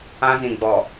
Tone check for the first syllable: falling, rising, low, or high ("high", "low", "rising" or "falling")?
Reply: high